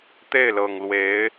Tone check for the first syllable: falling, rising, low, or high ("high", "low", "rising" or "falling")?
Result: falling